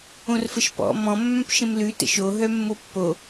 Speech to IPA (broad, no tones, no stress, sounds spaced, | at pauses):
õ r f ə ʃ p ɔ̰ m ɔ̃ mː œ̃ p ʃ ə̃ m l ʉ t ə̰ ʃ o ɦ œ mː o pː o